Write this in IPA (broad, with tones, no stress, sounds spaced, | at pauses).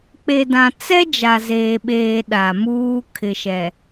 k͡p e˨ d ã˨ t͡s ɛ˦ d͡ʒ a˨ z eː˨ ɓ eː˨ ɗ a˨ m uː˦ kʰ ɪ˨ ʃ ɛ˨